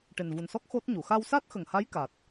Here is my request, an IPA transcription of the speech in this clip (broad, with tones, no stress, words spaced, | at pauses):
ʈe˨˩nvu˨˩nsɔ˦˥k̚ xo˦˥t̚ɲu˨˩˨ xa˧wsa˦˥t̚xə˨˩ŋha˧˥j ka˨˩t̚